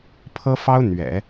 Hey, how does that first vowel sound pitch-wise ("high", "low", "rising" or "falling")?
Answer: high